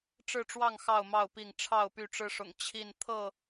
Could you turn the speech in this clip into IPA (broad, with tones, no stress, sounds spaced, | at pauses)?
ʈ͡ʂ ɻ̩˥˨ ʈ͡ʂ w ɑ˥˨ ŋ x ɑ˥˨ ʊ̯ m ɑ˥˨ ʊ̯ p i˥˨ ŋ ʈ͡ʂʰ ɑ˥˨ ʊ̯ p y˥˨ ʈ͡ʂ ɻ̩˦ ʂ ʊ̰˨˩ ŋ t͡ɕʰ i˥˨ n t̪ʰ ɤ˥˨